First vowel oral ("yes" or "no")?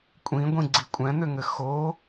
no